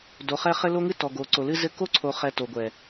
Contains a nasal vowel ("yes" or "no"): no